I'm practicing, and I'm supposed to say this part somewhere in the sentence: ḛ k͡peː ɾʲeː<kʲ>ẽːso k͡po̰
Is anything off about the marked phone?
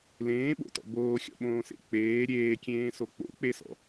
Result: no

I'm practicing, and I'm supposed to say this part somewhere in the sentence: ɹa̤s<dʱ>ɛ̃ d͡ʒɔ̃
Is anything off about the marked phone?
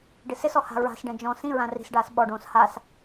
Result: yes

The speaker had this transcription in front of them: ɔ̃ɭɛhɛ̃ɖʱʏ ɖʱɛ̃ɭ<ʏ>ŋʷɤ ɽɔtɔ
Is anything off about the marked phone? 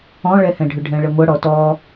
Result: yes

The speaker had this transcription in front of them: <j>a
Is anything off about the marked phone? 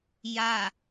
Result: no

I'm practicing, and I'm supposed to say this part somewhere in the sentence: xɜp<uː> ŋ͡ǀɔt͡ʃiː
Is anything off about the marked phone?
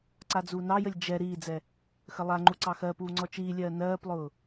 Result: no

